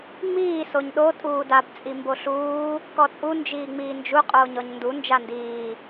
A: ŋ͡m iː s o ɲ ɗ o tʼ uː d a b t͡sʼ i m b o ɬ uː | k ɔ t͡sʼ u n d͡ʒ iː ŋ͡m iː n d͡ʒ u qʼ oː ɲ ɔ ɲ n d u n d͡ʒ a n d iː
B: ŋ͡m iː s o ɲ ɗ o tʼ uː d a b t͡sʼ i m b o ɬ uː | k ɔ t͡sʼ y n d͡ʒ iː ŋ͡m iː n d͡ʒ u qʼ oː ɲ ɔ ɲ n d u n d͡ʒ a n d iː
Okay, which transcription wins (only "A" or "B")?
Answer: A